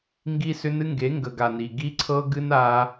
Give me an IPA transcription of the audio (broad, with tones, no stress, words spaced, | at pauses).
ŋɡi˦sʏ˦nɨ˦ŋɡe˨˦ ŋɡə˨ɡa˨ ni˨ ɡi˦ǀʰɤ˦ɡɨ˦n a˧